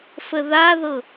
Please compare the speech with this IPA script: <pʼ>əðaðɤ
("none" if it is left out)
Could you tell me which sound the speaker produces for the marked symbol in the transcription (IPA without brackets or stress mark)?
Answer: f